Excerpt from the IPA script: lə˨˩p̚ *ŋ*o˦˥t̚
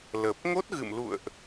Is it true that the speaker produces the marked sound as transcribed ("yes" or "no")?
yes